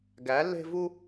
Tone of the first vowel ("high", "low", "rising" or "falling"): rising